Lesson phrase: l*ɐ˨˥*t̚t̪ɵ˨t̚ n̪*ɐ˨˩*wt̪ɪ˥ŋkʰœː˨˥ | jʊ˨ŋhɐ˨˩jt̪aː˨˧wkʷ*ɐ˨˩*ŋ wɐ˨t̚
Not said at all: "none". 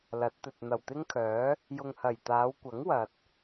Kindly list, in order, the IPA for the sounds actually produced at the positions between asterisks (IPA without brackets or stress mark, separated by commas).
ɐ˨˥, ɐ˨˩, ɐ˨˥